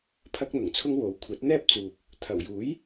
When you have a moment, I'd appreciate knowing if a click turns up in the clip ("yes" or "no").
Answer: no